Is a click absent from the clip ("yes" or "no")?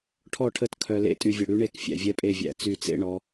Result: yes